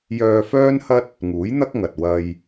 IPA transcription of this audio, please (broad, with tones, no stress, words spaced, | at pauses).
jœː˧fœː˥nhɐ˥t̚ | ŋuː˨˥jn̪ɐ˥k̚ŋɐ˨t̚ wɐ˧j